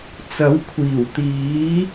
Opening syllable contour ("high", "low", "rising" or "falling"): rising